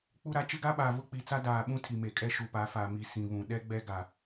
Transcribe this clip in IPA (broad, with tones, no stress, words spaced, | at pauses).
k͡pu˦ɾa˦ t͡ʃɪ˦ɡa˦ɓaː˨ vʊ˦k͡pi˨t͡sa˦ daː˨ɓũ˦ tʰi˨me˨kʼɛ˦ ʃu˨pa˨˦fa˨mi˨ sĩ˨βũ˨ ɗɛ˦ɡ͡bɛ˦ɡa˨